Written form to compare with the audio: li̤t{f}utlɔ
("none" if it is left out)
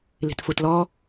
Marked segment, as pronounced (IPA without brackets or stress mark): f